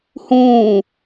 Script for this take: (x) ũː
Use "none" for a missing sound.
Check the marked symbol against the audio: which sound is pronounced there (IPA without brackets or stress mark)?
h